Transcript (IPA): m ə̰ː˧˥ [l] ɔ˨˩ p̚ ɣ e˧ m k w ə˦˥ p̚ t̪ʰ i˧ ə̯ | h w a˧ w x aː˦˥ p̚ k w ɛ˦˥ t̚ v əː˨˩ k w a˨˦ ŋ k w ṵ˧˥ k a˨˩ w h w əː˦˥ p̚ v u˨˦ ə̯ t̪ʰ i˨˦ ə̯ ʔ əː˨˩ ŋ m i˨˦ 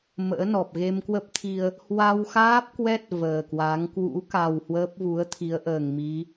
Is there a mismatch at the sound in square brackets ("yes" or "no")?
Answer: yes